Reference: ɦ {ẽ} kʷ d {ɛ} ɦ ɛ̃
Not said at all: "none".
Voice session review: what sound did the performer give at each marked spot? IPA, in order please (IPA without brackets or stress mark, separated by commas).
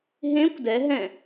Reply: ẽ, ɛ